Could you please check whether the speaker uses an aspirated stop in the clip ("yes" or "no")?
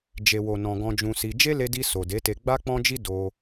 no